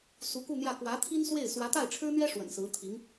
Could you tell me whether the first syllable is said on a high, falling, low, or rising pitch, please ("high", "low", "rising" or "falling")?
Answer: rising